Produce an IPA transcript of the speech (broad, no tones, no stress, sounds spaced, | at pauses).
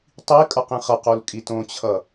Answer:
tˤ i kʼ ʌ q ĩ χ ʌ q o l kʼ i t õ t͡ɕʰ ʌ